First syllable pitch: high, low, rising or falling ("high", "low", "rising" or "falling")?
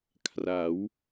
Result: rising